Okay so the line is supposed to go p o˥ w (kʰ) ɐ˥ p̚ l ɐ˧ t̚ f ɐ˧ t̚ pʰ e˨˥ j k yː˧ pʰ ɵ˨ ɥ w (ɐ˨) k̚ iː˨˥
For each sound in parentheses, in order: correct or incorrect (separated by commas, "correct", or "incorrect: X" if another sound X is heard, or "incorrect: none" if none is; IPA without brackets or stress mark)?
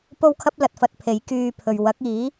correct, incorrect: ɐ˨˥